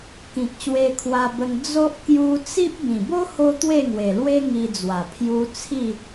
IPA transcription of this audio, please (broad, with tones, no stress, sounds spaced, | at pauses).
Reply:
k ĩ˨ k̚ ɕ w e˧ kʰ w a˧ b ə˧ ŋ d͡z o˦ ʔ k j u˧ t͡s i˦ p̚ b ĩ˨˩ b o˦ h o˦ t̪ w e˥˧ ŋ w e˨˩ l w e˦ ŋ i˧ d͡z w a˨˩ pʰ j u˧ t͡sʰ i˥˧